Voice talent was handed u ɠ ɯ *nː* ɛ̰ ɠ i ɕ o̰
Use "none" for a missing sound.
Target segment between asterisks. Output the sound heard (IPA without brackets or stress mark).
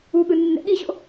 nː